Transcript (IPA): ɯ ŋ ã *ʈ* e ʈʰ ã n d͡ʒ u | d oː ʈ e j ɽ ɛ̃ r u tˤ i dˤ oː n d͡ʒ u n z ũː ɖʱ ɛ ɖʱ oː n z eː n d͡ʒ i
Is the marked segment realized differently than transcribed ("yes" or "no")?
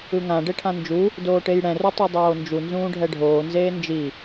yes